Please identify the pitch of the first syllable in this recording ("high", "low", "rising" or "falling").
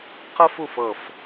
high